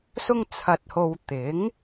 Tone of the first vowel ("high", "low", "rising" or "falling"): high